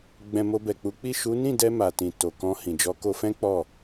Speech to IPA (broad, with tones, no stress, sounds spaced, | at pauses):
ɡ͡b ɛ̃˧ m o˧ b ɛ˨ k͡p u˨˦ k͡p i˦˨ ʃ u˨˦ n ĩ˦˨ d ɛ˧ m a˨ t ĩ˨ t o˨ k ɔ̃˧ h ĩ˨ d͡ʒ ɔ˨˦ k o˧ f ɛ̃˦ k͡p ɔ˦˨